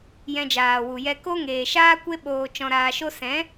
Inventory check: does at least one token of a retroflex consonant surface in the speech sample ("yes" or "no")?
no